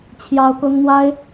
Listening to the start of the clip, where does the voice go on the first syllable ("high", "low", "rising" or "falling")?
high